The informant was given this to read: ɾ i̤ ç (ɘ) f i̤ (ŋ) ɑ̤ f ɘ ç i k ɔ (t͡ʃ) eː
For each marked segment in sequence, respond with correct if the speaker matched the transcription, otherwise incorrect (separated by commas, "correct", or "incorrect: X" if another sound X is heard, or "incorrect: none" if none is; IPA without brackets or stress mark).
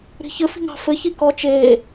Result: correct, correct, correct